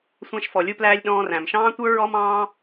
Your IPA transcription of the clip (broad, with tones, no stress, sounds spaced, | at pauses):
sʷ æ̃˧ ʃ f ɔ˩ lʲ u˧ p l æː˧ lʲ ɗ ɔ̃ː˧ r æ̃˩ m ʃ ɑ̃ː˥ tʷ ə˞˥ ɹ ɔ˥ m ɑ̃ː˥